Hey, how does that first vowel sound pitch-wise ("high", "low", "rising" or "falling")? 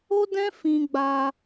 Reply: high